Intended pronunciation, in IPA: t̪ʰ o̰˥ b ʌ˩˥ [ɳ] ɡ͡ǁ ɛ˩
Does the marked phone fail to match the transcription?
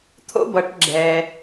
yes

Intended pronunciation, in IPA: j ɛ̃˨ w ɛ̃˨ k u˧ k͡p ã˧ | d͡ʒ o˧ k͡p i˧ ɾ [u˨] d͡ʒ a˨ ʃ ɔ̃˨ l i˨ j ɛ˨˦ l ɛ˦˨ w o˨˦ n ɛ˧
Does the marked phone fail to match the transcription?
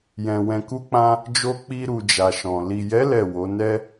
no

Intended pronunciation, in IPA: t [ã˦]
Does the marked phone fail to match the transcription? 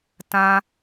no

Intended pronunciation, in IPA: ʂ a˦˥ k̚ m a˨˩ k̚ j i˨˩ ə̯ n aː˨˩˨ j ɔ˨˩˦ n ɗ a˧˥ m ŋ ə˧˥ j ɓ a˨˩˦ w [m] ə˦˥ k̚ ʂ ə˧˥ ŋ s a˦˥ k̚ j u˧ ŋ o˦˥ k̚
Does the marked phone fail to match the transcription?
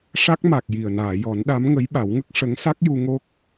yes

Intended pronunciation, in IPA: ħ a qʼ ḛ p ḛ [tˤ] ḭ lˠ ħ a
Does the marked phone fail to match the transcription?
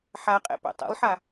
no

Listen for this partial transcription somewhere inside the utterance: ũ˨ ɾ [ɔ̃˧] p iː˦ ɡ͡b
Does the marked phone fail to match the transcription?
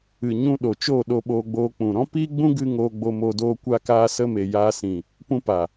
yes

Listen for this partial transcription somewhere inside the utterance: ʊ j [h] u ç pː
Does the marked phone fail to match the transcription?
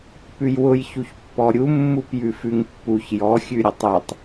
yes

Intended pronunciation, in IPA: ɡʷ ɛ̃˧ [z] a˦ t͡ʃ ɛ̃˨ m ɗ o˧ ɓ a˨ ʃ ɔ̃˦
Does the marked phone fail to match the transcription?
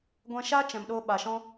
yes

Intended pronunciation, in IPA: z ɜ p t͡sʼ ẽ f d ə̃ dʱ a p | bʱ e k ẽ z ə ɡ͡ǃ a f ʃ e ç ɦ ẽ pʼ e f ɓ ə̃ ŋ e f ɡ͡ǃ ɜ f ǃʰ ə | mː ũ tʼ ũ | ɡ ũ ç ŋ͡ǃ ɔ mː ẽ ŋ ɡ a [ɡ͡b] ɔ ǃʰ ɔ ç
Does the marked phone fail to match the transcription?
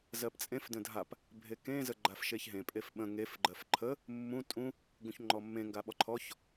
yes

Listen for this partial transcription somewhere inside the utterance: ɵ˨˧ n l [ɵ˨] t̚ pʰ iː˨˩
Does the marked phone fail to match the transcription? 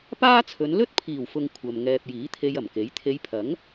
yes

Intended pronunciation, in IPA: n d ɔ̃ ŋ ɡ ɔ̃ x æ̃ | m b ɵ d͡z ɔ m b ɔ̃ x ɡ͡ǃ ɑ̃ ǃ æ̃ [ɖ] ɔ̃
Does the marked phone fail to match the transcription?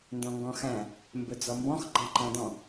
yes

